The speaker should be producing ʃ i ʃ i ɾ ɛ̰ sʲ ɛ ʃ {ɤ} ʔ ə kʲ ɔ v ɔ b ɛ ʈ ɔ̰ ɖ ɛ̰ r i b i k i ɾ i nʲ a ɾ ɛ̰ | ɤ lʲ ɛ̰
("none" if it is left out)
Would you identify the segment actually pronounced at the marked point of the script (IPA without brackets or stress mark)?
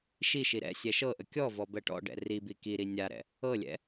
ɤ